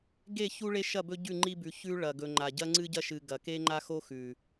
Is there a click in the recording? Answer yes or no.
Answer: yes